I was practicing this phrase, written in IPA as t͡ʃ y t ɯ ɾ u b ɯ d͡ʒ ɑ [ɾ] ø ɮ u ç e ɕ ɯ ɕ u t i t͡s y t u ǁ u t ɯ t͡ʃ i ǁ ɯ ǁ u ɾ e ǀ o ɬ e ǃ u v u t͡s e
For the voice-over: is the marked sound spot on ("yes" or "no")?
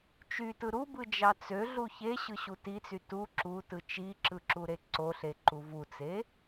no